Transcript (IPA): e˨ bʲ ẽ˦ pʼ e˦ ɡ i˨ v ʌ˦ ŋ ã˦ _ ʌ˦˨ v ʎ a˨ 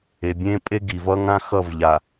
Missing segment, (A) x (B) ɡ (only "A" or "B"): A